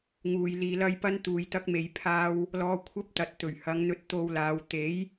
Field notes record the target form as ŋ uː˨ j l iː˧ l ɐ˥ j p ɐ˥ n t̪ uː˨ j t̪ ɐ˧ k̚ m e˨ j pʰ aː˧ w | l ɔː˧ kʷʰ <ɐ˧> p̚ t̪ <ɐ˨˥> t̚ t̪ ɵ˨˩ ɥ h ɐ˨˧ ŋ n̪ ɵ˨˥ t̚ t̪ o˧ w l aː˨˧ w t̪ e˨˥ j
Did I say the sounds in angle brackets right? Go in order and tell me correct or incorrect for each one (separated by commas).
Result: incorrect, incorrect